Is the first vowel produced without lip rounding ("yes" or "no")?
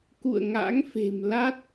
no